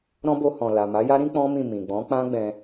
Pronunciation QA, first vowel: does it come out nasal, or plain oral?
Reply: nasal